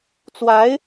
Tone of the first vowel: rising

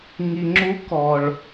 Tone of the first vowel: low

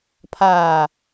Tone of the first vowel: low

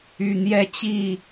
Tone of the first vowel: low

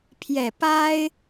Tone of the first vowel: low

